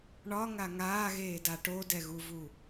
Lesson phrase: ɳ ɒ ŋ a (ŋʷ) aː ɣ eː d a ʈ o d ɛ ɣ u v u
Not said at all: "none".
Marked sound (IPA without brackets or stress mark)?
ŋ